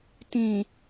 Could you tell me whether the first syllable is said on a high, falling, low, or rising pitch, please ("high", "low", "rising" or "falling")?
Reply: low